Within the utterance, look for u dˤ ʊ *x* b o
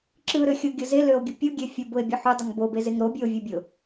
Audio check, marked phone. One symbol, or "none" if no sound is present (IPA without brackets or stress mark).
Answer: ŋ